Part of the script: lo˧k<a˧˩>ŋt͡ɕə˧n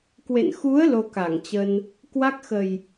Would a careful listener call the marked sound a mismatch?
no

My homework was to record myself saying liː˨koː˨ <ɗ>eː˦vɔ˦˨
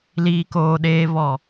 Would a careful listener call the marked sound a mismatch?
no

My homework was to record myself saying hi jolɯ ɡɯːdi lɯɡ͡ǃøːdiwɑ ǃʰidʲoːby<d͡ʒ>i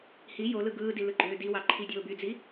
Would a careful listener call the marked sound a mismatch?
yes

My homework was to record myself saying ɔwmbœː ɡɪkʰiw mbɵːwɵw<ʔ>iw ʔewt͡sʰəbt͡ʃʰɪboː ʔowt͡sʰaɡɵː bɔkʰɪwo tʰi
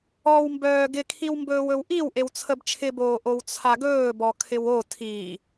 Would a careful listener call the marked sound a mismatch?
no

